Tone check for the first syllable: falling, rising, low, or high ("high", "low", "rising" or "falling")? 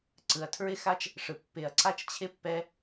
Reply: low